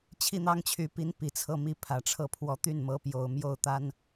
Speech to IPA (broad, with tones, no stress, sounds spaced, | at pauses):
t͡ɕʰ i˥˩ n̪ ɑ˥ ŋ t͡ɕʰ y˧˥ p i˧˥ n p i˨˩ t͡sʰ ɤ˥˩ m i˧˥ pʰ ä˨˩ ʈ͡ʂʰ ɤ˥˩ pʰ w ɔ˧˥ t̪ y˥˩ n m ɤ˧˥ p j o˨˩ ʊ̯ m j o˥˩ ʊ̯ t̪ a˥ n